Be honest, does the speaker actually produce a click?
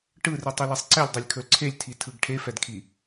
yes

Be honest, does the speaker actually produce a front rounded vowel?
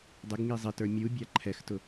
no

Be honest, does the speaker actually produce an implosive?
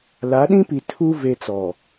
yes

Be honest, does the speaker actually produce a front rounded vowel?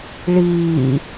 no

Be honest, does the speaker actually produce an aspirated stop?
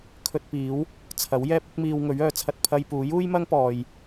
yes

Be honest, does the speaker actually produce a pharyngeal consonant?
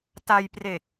no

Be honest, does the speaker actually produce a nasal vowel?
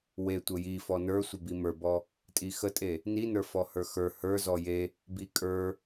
no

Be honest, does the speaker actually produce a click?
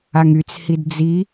no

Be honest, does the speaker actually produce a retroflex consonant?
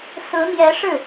yes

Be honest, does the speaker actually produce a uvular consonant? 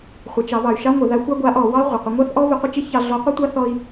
yes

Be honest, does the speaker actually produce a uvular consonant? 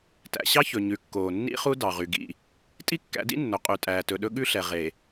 yes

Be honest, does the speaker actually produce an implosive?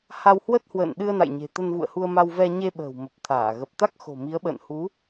yes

